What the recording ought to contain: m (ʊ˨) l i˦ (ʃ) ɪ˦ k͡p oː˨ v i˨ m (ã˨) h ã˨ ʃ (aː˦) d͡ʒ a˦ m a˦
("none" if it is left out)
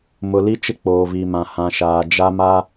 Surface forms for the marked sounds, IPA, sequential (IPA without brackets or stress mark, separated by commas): ʊ˨, t͡ʃ, ã˨, aː˨